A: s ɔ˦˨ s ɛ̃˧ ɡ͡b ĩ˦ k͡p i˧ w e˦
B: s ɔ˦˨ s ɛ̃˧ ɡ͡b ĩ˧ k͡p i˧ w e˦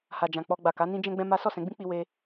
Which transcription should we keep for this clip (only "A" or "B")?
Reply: A